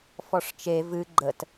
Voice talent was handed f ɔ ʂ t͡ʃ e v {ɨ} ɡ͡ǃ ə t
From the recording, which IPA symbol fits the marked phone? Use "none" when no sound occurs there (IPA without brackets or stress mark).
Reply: ɨ